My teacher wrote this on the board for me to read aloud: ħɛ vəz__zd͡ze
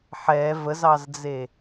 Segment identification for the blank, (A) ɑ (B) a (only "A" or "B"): A